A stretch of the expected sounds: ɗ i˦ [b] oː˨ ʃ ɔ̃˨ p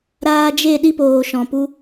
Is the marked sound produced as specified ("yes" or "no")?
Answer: no